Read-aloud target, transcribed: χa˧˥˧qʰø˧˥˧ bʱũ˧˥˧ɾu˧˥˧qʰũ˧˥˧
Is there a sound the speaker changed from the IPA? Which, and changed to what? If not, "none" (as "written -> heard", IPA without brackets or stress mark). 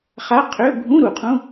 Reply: u˧˥˧ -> u˨˩